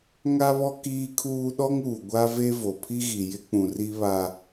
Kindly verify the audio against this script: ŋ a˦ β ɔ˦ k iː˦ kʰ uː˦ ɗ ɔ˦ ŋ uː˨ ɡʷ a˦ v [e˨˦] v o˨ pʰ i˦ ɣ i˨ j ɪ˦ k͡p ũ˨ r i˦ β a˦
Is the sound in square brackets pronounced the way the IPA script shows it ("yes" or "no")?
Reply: no